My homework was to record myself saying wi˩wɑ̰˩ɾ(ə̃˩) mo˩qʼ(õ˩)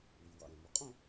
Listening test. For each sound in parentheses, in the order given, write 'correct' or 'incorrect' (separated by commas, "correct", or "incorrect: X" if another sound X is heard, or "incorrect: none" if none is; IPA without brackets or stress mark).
incorrect: æ̃˩, incorrect: õ˥˧